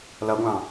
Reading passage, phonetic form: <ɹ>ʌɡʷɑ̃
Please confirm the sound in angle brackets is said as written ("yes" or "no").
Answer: no